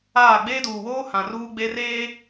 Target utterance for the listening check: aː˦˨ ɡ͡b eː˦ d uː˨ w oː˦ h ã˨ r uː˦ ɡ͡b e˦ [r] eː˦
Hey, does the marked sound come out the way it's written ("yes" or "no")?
yes